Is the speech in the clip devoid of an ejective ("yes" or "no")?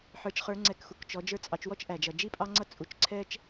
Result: no